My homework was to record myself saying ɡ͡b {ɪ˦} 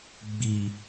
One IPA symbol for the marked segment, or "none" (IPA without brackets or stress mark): i˦